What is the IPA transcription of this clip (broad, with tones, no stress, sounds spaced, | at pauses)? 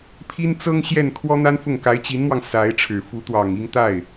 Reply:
pʰ i˥ n t͡s ɤ˥ ŋ ɕ j ɛ˥˩ n kʰ w ɔ˥ n̪ a˥ n f ʊ˥˩ ŋ k a˧˥ ɪ̯ t͡ɕ i˧˥ n m w ɑ˧ ŋ s a˧˥ ɪ̯ ʈ͡ʂʰ ɻ̩˨˩ f u˧˥ t̪ w ɑ˨˩ ŋ i˥˧ ŋ t̪ a˥˩ ɪ̯